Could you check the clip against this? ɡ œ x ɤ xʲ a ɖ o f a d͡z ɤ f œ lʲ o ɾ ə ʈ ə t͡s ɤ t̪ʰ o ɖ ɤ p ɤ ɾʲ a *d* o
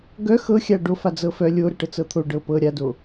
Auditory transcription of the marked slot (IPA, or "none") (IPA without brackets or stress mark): d